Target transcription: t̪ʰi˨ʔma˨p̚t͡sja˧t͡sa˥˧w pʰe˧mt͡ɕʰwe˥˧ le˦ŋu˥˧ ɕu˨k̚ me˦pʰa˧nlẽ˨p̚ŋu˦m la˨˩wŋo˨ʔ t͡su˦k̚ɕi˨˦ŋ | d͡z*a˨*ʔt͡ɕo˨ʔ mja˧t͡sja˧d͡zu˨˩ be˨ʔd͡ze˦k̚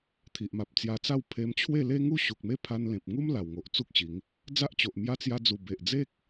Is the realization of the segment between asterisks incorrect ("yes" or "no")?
yes